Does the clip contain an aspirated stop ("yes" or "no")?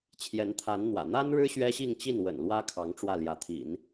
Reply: yes